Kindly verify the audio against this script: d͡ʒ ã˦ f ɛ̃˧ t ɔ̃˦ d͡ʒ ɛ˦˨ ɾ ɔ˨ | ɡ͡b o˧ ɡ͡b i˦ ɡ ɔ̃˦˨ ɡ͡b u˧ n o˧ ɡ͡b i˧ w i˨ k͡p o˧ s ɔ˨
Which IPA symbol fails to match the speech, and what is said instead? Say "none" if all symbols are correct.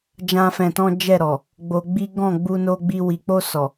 none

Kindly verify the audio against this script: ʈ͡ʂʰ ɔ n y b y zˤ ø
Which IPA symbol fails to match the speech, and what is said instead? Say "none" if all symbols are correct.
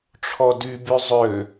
n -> d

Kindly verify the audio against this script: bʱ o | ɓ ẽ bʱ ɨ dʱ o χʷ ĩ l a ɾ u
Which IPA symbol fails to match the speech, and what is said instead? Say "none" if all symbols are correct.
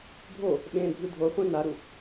l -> n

